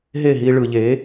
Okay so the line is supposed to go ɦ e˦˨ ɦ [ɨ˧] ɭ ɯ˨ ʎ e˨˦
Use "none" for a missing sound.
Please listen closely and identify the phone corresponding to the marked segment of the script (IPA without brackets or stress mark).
i˧